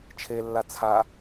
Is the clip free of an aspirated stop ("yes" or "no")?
no